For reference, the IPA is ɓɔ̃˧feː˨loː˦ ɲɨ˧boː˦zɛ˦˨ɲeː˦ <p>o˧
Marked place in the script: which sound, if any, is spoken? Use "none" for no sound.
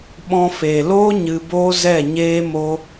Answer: m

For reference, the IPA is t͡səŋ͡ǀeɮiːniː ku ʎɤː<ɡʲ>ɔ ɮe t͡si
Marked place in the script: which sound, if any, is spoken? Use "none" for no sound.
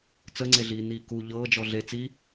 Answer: d͡ʒ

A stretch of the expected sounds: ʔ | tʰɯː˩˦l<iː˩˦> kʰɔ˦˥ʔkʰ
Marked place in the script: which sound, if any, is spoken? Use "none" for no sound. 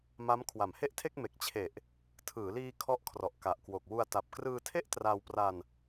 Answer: iː˧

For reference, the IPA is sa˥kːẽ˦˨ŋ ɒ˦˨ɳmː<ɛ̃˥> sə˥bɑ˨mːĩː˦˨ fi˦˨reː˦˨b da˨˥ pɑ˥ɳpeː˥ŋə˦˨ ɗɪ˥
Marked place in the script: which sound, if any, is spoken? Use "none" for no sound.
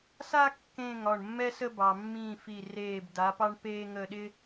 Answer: ɛ˥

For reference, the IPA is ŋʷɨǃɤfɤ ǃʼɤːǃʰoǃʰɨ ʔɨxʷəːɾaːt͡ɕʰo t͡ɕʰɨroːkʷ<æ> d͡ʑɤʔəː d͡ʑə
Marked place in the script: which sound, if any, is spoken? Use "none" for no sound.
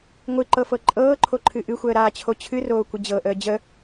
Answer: ə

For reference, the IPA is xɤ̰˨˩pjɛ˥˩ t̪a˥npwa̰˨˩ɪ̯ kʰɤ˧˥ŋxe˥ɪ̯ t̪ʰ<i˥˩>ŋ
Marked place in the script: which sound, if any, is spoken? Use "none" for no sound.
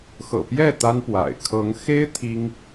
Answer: i˥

